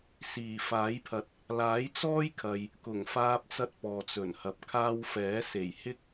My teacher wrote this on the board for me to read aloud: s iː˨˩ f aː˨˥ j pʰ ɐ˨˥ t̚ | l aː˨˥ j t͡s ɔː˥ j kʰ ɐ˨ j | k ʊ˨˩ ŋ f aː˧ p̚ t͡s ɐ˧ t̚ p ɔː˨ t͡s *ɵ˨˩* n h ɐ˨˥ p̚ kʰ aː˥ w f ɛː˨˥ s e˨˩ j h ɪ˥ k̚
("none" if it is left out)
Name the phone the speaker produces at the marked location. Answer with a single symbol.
ɵ˨˩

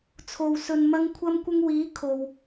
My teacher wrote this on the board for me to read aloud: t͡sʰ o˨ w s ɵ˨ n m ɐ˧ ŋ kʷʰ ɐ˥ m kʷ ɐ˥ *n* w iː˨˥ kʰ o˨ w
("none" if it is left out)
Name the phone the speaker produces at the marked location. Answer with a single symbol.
ŋ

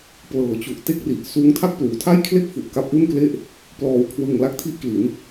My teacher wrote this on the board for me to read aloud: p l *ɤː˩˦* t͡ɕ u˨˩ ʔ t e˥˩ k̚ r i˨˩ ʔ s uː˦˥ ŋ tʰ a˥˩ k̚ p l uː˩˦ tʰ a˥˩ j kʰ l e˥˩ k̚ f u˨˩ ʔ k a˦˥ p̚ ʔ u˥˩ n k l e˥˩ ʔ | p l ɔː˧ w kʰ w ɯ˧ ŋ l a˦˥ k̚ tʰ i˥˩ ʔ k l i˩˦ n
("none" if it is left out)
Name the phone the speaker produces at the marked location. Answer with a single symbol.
ɤː˩˦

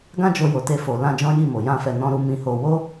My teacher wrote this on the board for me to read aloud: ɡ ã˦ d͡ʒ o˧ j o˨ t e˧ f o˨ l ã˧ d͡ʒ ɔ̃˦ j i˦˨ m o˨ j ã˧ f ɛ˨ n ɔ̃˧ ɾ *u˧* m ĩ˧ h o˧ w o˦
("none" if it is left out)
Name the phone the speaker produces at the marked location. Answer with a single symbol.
u˧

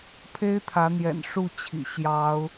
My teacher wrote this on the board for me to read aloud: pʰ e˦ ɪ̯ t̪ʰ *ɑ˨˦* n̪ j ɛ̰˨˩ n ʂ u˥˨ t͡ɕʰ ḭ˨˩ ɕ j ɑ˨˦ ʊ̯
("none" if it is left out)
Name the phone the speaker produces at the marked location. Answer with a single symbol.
ä˨˦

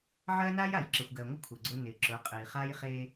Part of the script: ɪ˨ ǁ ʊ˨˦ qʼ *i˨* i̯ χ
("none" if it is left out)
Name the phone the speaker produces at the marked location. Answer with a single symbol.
e˨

